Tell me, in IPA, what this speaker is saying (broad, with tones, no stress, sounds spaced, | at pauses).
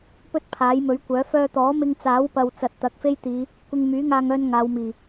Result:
p ɵ˥ t̚ pʰ aː˨˥ j m ɵ˨˥ ɥ kʷ œː˨˥ f œː˧ t̪ ɔː˨˥ m ɪ˧ ŋ t͡s aː˨˥ w p ɐ˨ w t͡s ɐ˨ t̚ t̪ ɐ˨˥ k̚ f e˥ j t̪ iː˨˧ | kʷ ɪ˧ ŋ m yː˨˥ ŋ aː˧ ŋ œː˧ n ŋ aː˨˧ w m iː˨˩